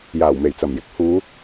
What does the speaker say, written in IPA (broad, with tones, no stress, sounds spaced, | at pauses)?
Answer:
j aː˨˩ w m e˨˩ j t͡s ɐ˨˩ m j ɪ˨˥ k̚ h uː˨˧